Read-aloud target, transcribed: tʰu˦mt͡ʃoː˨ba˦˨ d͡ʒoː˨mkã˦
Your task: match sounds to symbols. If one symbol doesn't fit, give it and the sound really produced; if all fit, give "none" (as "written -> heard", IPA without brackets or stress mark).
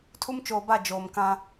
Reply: none